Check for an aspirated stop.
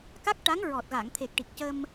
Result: present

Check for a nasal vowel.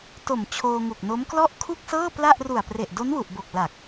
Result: absent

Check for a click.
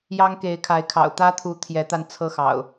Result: absent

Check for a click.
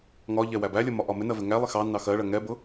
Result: absent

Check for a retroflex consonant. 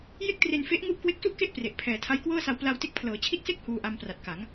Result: absent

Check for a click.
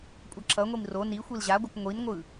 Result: present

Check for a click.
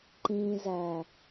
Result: present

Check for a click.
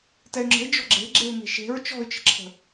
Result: present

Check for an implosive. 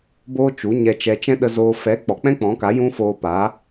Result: present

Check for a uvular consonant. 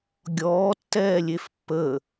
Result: absent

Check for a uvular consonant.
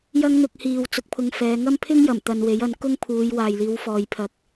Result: absent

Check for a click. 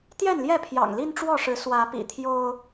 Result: absent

